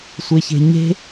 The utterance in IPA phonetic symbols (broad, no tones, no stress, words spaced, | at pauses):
sʷeçe̤ɲe̤